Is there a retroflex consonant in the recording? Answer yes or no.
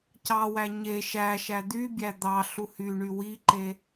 yes